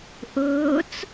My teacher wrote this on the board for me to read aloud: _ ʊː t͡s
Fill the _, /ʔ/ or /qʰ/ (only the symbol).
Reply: ʔ